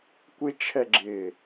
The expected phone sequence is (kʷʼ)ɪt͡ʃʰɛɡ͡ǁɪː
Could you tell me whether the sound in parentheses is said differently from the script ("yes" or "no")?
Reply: yes